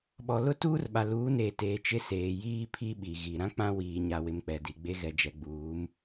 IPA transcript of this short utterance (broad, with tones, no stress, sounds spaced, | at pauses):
ɓ ɔ˨ l ʊ˦ t uː˦ r ɓ a˨ l uː˨˦ n eː˨ t eː˨ t͡ʃ ɪ˦ s eː˨ j iː˦ pʰ i˦ ɓ i˨ ɣ i˨ ɾ ã˦ k͡p ã˦ w iː˨ ɲ a˨ w ɪ˨ m k͡p ɛ˨ d i˨ ɡ͡b e˦ ɣ ɛ˨ d͡ʒ ɛ˨ ɡ͡b uː˨˦ m